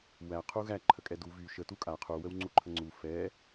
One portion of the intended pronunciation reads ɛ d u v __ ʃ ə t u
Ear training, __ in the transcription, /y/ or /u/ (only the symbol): y